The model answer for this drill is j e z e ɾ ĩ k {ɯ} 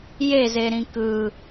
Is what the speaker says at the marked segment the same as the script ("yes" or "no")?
yes